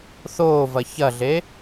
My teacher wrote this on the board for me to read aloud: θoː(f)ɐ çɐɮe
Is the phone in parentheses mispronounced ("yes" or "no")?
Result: yes